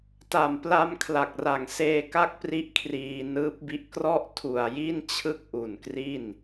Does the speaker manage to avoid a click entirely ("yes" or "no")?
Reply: yes